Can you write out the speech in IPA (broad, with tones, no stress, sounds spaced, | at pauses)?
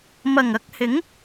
m ɐ˨˩ ŋ ɐ˧ k̚ h ɪ˨˥ ŋ